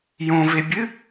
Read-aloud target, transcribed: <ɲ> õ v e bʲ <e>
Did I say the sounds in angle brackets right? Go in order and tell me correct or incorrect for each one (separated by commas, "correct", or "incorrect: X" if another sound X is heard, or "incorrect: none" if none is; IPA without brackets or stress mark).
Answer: incorrect: j, incorrect: ɨ